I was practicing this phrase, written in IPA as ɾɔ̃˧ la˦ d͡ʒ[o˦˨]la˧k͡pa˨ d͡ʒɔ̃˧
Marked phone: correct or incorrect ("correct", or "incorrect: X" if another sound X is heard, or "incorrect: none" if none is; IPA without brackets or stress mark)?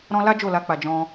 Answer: correct